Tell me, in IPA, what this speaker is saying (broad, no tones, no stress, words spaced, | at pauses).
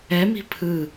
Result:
ɛmi̤ pʰɯ